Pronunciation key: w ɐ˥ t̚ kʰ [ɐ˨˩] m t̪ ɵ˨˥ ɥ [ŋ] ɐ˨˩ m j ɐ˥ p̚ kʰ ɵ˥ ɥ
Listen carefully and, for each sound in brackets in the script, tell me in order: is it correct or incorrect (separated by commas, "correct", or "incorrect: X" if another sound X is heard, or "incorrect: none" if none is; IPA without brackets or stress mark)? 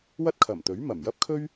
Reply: correct, incorrect: m